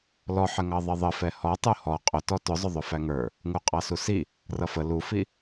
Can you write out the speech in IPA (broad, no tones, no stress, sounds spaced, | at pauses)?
l ɔ ħ ə ŋ ɑ ðˤ ə ðˤ ə f ɛ h ɔ tˤ u h ɔ qʼ ʊ t ɔ t ʊ zˤ ʊ ðˤ ʊ f æ ŋ ə˞ | ŋ u qʼ ɑ s u s i | r ʌ f ə l u f i